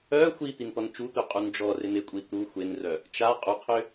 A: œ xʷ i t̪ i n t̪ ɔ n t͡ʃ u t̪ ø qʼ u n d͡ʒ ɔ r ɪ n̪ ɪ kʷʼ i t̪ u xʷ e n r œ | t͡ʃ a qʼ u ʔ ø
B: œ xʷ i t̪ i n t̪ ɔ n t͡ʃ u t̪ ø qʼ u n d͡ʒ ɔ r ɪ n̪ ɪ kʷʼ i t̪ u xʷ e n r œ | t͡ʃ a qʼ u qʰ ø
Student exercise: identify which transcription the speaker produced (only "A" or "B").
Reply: B